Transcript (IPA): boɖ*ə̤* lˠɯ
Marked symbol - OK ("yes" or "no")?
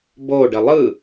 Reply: no